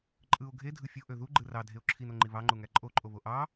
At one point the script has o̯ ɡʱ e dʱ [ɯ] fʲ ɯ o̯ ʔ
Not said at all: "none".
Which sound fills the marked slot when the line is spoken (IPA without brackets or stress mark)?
ɯ